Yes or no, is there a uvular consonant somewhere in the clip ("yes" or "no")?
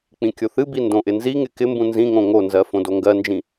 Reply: no